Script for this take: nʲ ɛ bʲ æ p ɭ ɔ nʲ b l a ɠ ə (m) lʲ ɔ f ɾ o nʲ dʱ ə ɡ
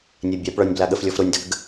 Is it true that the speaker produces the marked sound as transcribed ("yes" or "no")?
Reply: no